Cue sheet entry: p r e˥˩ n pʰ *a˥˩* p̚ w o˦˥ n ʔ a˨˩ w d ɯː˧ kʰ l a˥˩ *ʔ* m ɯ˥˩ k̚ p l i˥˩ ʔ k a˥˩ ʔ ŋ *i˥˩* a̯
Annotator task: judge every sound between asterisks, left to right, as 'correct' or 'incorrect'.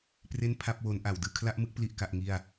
correct, correct, correct

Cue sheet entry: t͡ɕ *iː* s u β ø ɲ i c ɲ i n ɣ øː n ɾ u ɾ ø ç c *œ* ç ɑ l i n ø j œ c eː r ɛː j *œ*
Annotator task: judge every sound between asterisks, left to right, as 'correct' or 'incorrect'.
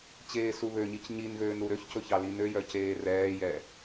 incorrect: eː, incorrect: ɵ, incorrect: ɛ

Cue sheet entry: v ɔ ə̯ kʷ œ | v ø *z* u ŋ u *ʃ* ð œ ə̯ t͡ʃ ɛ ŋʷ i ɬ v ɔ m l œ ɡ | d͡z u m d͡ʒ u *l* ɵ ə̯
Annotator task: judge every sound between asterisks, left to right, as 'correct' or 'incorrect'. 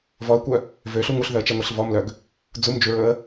incorrect: ɬ, incorrect: ɬ, incorrect: ɹ

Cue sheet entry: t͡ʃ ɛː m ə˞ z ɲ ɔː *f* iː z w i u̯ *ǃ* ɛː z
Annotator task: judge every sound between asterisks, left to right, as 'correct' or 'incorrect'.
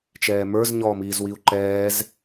incorrect: m, correct

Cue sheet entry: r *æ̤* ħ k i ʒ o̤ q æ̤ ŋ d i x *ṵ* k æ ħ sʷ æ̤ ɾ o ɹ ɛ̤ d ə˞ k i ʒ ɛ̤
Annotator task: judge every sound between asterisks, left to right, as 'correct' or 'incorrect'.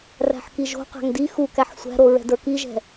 correct, incorrect: u

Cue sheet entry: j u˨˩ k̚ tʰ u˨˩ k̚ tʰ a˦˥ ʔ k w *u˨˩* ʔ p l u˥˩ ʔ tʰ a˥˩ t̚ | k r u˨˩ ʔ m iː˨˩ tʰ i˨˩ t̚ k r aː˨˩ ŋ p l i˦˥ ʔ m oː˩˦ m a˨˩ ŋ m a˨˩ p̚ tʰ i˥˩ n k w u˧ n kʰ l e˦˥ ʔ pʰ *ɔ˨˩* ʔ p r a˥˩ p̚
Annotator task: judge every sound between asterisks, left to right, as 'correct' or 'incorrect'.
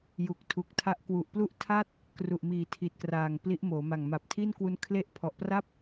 correct, correct

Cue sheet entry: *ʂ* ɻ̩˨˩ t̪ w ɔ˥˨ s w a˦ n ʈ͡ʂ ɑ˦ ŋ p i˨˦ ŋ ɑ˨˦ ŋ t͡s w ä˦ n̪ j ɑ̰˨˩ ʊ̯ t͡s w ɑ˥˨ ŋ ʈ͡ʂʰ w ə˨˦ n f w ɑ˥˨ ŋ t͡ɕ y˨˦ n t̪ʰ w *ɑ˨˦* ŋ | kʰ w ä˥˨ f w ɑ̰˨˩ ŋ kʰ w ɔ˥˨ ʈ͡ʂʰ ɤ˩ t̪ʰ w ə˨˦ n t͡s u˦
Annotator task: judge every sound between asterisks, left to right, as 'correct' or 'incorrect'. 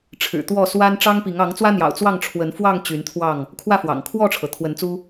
incorrect: ʈ͡ʂʰ, incorrect: ɑ˥˨

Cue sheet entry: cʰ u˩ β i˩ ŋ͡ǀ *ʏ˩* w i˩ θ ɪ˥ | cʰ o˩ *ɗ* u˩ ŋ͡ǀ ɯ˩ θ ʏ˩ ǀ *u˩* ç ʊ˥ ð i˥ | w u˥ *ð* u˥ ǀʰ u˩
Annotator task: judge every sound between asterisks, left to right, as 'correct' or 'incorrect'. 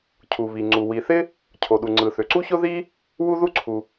incorrect: u˩, correct, incorrect: u˥, correct

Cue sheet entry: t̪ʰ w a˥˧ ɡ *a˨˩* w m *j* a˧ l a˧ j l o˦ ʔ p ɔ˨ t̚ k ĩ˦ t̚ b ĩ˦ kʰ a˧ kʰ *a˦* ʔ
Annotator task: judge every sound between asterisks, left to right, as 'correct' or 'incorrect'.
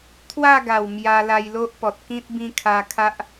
correct, correct, correct

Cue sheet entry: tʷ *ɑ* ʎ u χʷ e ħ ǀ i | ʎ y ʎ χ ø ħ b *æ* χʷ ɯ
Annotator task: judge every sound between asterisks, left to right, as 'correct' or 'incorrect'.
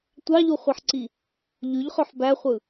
correct, correct

